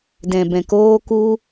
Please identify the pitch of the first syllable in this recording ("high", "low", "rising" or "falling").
low